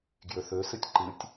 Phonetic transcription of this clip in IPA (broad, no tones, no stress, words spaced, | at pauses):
ɡjøθøsɨtʲ ǃɨtʲ